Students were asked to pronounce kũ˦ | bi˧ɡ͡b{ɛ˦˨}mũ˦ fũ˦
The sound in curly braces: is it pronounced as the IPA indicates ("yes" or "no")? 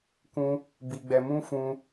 no